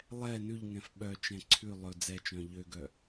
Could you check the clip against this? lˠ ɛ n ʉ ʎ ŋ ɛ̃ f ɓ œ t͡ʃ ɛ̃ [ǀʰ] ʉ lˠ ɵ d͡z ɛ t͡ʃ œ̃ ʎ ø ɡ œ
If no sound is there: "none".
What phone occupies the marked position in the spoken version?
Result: ǀʰ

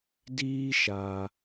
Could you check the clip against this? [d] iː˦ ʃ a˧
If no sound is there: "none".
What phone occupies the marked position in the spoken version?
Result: d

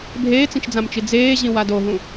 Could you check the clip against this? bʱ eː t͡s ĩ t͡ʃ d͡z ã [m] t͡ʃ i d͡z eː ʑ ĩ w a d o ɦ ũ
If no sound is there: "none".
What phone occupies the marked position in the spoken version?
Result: m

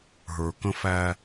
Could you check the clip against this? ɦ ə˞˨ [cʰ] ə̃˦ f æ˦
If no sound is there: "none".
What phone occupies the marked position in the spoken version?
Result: k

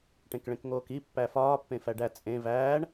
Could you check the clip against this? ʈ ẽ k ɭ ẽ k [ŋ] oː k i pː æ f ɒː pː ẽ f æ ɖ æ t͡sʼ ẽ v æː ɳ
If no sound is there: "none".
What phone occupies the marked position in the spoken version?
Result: ŋ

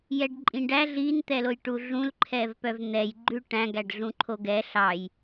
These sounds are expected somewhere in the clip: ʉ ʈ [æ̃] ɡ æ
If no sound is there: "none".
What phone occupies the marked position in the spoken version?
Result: æ̃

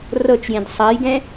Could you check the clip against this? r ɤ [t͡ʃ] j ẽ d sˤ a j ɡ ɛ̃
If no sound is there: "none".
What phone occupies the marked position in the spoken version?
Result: t͡ʃ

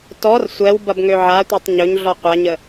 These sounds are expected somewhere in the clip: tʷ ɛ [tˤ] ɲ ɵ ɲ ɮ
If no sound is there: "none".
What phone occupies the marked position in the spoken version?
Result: tˤ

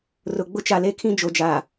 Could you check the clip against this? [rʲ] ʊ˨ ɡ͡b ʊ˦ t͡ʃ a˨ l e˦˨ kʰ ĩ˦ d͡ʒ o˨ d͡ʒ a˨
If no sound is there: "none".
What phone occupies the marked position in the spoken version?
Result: r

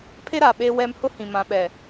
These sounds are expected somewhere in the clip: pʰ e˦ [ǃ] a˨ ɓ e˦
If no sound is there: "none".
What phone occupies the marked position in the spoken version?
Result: ɾ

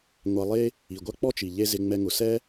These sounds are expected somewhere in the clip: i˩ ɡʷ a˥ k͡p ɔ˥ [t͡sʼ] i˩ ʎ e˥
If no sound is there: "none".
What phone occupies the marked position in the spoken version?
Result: t͡ʃ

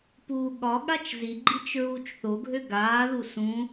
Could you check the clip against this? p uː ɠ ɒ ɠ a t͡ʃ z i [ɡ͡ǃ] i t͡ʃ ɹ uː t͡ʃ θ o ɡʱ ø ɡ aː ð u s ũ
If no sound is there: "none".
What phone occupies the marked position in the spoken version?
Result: ɡ͡ǃ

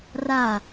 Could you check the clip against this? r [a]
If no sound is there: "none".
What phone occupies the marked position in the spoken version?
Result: a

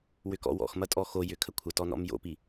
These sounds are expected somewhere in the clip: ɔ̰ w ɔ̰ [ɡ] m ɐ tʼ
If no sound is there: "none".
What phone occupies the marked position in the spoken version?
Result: x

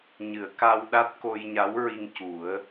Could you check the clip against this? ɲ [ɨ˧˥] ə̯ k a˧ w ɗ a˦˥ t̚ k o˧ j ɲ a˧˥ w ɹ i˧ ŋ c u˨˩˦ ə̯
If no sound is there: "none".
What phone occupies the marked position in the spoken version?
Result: ɨ˨˩˨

